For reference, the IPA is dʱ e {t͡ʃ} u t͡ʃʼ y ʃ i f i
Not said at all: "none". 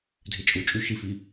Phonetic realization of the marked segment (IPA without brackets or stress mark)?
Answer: t͡ʃʼ